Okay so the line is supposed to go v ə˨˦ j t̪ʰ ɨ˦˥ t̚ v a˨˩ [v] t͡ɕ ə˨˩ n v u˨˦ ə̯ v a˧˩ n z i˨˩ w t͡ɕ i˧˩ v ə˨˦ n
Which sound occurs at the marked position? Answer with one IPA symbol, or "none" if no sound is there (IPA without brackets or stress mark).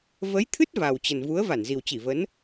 w